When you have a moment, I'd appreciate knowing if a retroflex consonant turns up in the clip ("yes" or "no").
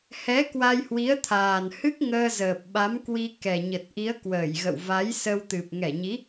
no